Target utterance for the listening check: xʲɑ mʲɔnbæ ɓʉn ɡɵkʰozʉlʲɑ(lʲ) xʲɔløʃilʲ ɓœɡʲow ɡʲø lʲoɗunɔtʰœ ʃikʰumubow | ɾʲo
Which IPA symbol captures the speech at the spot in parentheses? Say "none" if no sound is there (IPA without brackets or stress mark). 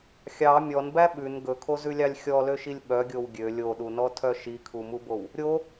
lʲ